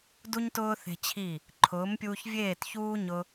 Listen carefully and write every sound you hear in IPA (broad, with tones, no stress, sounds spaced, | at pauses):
d u˦ ɲ t ʊː˦ θ e̤˧ t͡ɕʰ i˦˨ | ǃʰ ʊː˨˦ m pʲ uː˧ ç vʲ eː˦˨ t ç uː˦ ɲ ʊ˦